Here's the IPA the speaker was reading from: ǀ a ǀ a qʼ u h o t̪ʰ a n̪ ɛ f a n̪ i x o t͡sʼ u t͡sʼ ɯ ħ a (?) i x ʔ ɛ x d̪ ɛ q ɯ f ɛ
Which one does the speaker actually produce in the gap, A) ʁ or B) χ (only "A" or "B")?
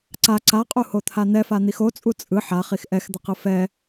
B